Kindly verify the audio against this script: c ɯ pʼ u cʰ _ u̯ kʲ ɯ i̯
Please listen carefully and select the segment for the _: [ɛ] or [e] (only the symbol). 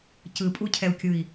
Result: ɛ